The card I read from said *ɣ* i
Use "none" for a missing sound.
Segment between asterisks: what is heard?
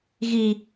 ɣ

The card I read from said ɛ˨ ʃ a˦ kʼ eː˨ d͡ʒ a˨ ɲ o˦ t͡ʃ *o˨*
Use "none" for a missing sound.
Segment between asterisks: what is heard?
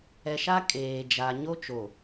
o˨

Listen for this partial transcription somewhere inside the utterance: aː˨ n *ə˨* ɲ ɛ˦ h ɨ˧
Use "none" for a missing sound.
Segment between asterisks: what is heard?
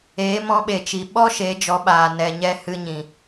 ɛ˨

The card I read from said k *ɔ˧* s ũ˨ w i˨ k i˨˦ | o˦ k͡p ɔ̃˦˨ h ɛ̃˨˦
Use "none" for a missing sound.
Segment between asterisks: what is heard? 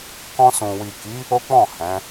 ɔ̃˧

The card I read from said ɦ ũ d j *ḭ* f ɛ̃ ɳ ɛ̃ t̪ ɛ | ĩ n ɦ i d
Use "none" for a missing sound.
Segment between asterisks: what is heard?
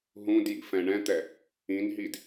ḭ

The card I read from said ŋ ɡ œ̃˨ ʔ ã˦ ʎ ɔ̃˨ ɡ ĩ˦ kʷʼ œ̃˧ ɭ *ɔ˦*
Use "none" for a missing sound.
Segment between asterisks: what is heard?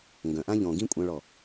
ɔ˨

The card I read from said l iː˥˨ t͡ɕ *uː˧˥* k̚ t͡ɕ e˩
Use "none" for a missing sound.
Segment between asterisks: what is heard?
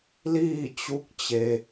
u˧˥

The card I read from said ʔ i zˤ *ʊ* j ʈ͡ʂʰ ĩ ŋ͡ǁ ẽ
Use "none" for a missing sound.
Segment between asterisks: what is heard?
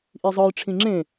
ɯ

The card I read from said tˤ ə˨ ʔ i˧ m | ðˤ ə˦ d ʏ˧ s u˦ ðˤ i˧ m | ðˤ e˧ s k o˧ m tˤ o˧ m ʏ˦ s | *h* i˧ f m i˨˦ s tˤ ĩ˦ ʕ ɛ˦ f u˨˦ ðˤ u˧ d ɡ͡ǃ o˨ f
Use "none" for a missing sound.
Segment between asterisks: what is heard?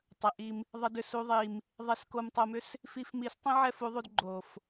f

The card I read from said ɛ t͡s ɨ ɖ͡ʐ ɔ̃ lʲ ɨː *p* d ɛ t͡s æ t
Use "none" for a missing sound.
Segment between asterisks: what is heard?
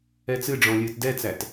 t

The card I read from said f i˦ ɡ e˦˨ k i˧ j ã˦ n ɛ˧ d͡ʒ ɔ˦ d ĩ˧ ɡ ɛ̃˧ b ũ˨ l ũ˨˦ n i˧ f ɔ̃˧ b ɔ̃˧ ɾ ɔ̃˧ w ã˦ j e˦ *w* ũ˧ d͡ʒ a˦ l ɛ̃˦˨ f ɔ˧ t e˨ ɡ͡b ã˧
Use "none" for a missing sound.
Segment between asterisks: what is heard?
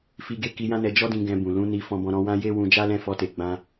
w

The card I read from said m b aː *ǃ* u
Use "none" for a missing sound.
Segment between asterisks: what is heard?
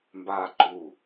ǃ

